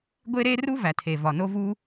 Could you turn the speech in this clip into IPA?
ɡʷe˥ɾe˥ ru˥væ˩tʰe˩ vɒ˩no˥vu˥

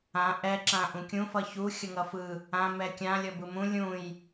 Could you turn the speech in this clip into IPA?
ã ʔɛ ǁãʔũkʲũ fʌçu xʲʌŋʌfɯ | ã mɛkʲã lʲʌbɯmũ lʲũj

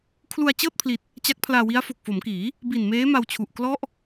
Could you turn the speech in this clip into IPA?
kʰlu˧a̯t͡ɕɤː˥˩t̚pʰli˨˩t̚ | t͡ɕa˦˥k̚pʰlaː˧wi˦˥a̯fo˨˩k̚ fo˩˦mkiː˩˦ | bi˨˩nmeː˦˥ma˧w t͡ɕʰu˨˩ʔklɔ˥˩ʔ

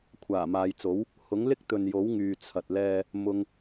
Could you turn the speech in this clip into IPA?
kʷʰaː˨˩maː˨jt͡so˨˥w | hʊ˨˥ŋlɪ˥k̚ t̪ɵ˨njo˨˥w ŋyː˨ t͡sʰɐ˨t̚lɛː˧ | mʊ˧ŋ

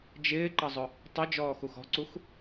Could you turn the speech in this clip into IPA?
d͡ʒɪːǃʌzˤʊ | tˤʊ d͡ʒɔːxuxɔ̤ǀux

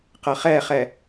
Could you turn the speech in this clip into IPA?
qɐχɛχɛ

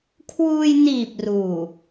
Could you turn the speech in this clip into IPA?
kʰwuː˧jniː˨˩p̚ ruː˨˩

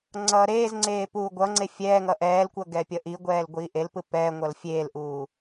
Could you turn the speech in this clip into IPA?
ŋ͡ǀʌːɾeːzŋ͡ǀeː puːɡʷʌŋ͡ǀe fʲɛːŋʌ ʔɛːlkʷʌ ɡɛpʲʌʔiɡʷɛːl ɡʷiːʔelpɯ pɛːŋʷʌl fʲeːlʔuː

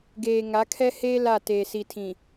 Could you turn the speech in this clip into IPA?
ɡeː˨ ŋa˨˦kʰɛ˦heː˦ la˦˨ teː˨si˨tʰĩ˨

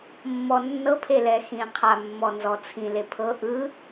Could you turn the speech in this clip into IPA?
mːɔnːɤpʰelɛ xĩqʰa mːɔnzɔt͡sʰĩle pʰɤ ʔɯ

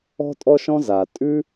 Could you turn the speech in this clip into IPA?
ɔ̤˦tʼɔ˦ʃɔ̃˦za˨ tʼʉ˦

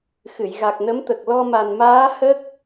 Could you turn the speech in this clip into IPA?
xɨ˨˩˨j ɣa˨˩k̚nə˧˥mt̪ə˨˩k̚ lɔ˧ma˨˩nmaː˧˥ hə˦˥k̚

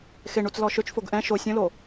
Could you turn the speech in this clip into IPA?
xeɳut͡s lɔʃøt͡ʃfoɡ ʔɛ̃ ʃo sʲõlo

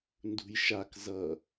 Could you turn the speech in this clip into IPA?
ndṳjʃak zʌ

